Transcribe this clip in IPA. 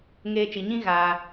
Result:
ŋ eː˦ t͡ʃ i˧ ɲ ĩ˦ ɣ aː˧

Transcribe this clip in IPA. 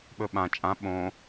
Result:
ɓ ɵ ɓ ã t͡ʃʼ ã ɓ õ

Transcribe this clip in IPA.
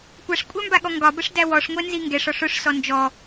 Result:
kʷ a ʂ kʷʼ æ m b a ɠ ɔ ŋ ɡ ɒ b ə ʂ d æ w ɔ ʂ ŋʷ ɛ n z i ŋ ɡ ɛ ʂ ɔ ʂ ʊ ʂ s ɔ n d͡ʒ ɔ

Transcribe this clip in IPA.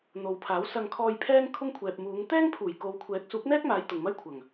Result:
n̪ o˨˧ w pʰ aː˨˥ w s ɐ˧ ŋ kʰ ɔː˧ j pʰ ɛː˥ ŋ kʰ ʊ˥ ŋ kʷʰ ɛː˨ p̚ m uː˨˧ ŋ t̪ ɛː˥ ŋ pʰ uː˨˩ j k o˨˧ w kʷʰ ɛː˨˥ k̚ s uː˨˥ k̚ n̪ ɛː˥ k̚ m aː˨˧ j t̪ ʊ˨ ŋ m ɐ˥ j kʷʰ ɐ˨˩ ŋ

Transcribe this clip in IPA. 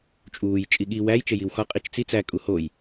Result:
t͡ʃʼ uː j t͡ʃʼ i ɠ i w æ j t͡ʃ e j i w x ɒ qʼ i t͡ʃ t͡s i t͡s æ kʼ u h o j

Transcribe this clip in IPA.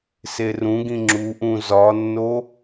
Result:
s e r ũ ɡ ĩ ŋ͡ǁ u ʔ ũ z ɒ nː o

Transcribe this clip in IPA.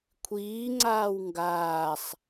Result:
kʷʰ iː ŋ͡ǀ aː w ŋ ɡ aː sˤ

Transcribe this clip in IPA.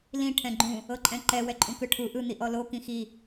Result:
l ĩ ʈʰ ɛ̃ ɡ͡ǃ ũ | ɤ ǃʼ ɛ̃ ǃ ɛ w ɛ ǃʼ ũ k ɯ ʈʰ u ʔ ɯ n̪ i ʔ ɔ l o k ĩ x i

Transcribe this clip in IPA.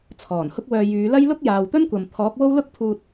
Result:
t͡sʰ ɔː˨˩ n h ʊ˧ k̚ w œː˨ j yː˨˧ l ɐ˥ j l ʊ˥ k̚ j aː˨ w t̪ ɵ˥ n kʷ ɐ˨ m t̪ʰ ɔː˨˥ k̚ w o˥ w l ʊ˥ k̚ pʰ uː˧ t̚

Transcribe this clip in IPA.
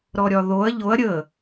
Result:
ɾ ɔ ɾʲ ɒ ð o ɐ̯ ʎ o ɐ̯ ɾʲ ə

